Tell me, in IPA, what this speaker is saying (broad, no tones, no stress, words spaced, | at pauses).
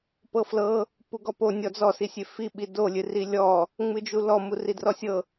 pɤflɤ | puɡɔpo nʲɔd͡zɔsi sʲefi ɓidolʲɨri lʲɔ | ŋ͡mɨd͡ʒulɔ muridrɔsʲɤ